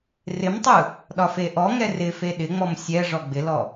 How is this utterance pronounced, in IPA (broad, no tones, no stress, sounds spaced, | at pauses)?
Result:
r ɪ m tˤ ɯ | ɗ ɒ f e ʔ ɔ ŋ ɛ r ɪ f e ɗ ɪ ŋ͡m ɔ m sʲ ɛ ʐ ɔ ɡ͡b ɪ l ɔ